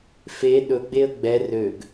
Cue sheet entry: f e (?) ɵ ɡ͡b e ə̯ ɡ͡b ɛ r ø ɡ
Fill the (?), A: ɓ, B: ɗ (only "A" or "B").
B